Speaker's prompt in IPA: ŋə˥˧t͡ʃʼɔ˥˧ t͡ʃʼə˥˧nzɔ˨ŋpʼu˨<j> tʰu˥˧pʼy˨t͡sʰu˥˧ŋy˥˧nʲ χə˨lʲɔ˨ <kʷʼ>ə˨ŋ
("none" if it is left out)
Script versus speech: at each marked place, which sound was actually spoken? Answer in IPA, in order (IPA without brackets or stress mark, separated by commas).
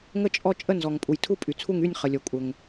j, kʷʼ